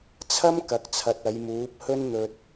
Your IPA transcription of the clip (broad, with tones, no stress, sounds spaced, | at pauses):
t͡sʰ ɐ˥ m k ɐ˨ k̚ t͡sʰ ɐ˨ t̚ ɐ˨˧ j m uː˨˥ p̚ h ɵ˥ n n̪ ɵ˧ t̚